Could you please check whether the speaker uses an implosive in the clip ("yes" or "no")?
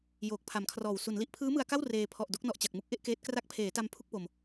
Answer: no